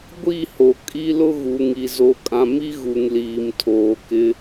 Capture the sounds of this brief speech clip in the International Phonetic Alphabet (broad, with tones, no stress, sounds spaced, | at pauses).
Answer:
ɡʷ i˦˨ h o˨ kʼ i˦ l ʊ˦ ɣ u˨ ŋ i˨ z o˨ kʼ ã˨ m i˦ ɣ u˨ ŋ l iː˨ m tʰ oː˨ k ɪ˦